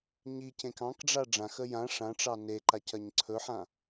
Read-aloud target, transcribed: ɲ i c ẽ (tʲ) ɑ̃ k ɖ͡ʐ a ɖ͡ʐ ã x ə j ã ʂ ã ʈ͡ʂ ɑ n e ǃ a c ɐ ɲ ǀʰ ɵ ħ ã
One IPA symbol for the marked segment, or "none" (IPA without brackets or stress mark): k